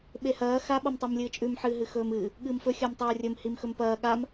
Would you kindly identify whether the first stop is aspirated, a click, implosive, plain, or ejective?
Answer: implosive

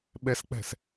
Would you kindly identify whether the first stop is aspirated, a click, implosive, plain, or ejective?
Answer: implosive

